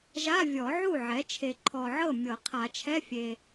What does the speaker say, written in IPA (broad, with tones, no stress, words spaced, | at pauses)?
ʒa˧˥˧vʲɔ˨˩˦ʕu˥˩ ʕɛ˩˥t͡ʃʰe˨ǃʰɔ˨ʕɤ˥˩ mʲɤ˨˩˦qʰa˨˩˦t͡ʃʰɛ˧˥˧fʲe˨